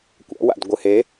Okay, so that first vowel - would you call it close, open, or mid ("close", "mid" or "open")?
open